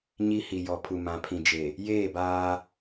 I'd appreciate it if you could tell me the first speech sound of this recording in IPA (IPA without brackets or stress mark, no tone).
ɲ